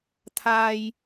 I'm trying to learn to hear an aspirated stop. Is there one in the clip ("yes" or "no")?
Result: yes